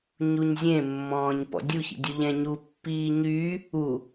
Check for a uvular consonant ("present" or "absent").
absent